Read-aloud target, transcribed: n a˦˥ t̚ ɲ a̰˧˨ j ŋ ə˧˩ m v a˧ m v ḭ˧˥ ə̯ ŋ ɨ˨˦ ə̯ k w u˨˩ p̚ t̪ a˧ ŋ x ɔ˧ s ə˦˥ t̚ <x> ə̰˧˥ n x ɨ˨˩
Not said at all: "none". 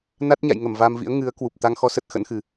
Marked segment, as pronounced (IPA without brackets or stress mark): x